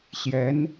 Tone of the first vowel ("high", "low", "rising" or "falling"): rising